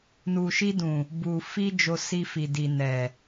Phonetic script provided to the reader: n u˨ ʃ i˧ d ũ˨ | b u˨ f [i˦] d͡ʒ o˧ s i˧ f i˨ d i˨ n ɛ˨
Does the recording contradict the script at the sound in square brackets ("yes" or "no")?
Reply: yes